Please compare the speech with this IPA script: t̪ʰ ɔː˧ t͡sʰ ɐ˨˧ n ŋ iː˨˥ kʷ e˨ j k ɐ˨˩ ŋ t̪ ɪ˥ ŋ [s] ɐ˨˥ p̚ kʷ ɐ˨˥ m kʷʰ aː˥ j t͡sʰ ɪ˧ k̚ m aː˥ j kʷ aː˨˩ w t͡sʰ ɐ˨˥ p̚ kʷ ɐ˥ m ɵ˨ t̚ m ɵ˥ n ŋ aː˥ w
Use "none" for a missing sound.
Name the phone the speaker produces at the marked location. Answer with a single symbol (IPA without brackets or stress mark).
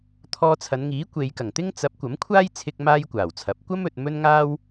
t͡s